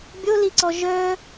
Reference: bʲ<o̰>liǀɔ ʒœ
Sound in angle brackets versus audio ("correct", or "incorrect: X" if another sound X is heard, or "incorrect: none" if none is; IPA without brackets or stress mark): incorrect: o